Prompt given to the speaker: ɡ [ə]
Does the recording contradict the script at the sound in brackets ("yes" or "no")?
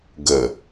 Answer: no